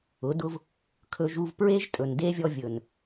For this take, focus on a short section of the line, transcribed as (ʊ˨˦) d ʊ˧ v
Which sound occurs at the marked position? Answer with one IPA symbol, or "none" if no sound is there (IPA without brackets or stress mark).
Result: ʊ˨˦